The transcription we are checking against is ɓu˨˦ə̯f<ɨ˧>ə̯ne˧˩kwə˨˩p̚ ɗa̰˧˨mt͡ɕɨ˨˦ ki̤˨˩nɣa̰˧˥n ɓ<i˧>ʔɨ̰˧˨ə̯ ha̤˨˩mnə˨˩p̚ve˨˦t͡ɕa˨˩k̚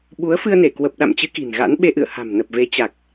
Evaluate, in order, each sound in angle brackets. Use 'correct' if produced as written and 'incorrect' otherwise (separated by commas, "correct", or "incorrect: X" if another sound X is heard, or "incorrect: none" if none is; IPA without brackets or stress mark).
correct, incorrect: e˧